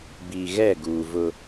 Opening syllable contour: low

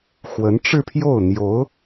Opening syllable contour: rising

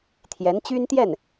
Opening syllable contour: rising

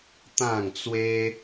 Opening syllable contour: falling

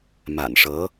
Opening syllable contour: low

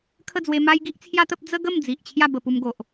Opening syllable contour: falling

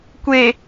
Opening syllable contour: low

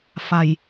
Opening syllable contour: low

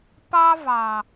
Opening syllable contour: high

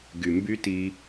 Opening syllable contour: low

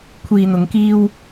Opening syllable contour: low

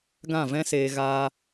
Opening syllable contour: falling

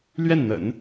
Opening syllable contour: falling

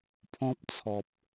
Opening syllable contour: high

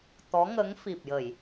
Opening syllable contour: rising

